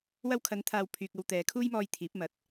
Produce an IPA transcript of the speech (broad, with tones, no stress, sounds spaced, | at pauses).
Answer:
w ɐ˧ w kʰ ɐ˨˧ n t̪ʰ aː˨ w pʰ yː˨ k̚ ɐ˧ w t̪ ɛː˨˧ kʰ uː˥ j m ɔː˧ j t̪ʰ iː˨˥ p̚ m ɐ˨˥ t̚